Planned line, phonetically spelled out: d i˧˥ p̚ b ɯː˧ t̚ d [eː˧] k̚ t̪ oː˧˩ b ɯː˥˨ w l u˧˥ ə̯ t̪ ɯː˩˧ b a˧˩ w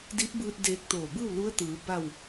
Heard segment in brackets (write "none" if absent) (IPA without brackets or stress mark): eː˧